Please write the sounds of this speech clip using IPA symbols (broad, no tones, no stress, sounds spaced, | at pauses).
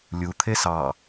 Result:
lʲ u t̪ʰ e s ɑ